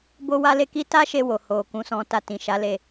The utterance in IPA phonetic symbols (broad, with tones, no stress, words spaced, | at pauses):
bo˦wa˦le˦ki˦ ta˦ʃe˧ wo˨ ho˨ kũ˨˦sɔ̃˧ta˧ tĩ˨ʃa˨˦le˧